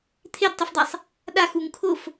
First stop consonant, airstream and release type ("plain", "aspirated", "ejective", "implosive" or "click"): aspirated